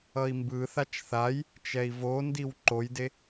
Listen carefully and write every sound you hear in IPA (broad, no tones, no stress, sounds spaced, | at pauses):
ʌ i̯ m b ɯ θ a t͡ʃ θ a j | t͡ʃ ɛ i̯ v o n d i w ǃ o j d e